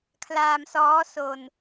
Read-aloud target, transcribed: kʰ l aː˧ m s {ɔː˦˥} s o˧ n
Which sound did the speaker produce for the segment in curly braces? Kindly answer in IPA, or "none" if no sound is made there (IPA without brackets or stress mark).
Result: ɔː˦˥